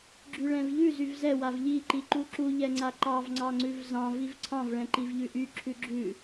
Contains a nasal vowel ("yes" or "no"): yes